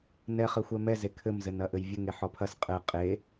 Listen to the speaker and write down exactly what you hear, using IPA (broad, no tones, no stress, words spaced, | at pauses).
nɛχɘ xʷɛmɛze kʰɘmzɘnɐʔɘj vʲɘŋe ħɔpʰɐs qʼɘ qʼe